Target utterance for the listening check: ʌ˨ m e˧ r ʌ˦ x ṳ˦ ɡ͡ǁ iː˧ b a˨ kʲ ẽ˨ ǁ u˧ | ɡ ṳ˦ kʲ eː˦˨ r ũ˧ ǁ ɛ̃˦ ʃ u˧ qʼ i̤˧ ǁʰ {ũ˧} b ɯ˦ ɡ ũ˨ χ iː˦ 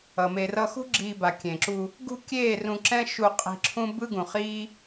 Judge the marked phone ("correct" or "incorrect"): incorrect